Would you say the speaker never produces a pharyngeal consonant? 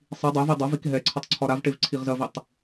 yes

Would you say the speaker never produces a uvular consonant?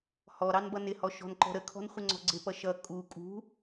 no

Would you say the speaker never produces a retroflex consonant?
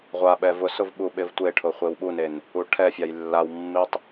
no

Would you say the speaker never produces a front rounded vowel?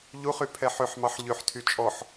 no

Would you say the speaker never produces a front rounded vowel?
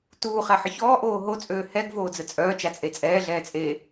no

